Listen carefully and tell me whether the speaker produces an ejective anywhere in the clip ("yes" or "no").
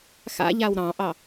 no